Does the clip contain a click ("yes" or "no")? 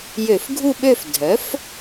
no